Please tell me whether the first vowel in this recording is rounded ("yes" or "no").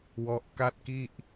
yes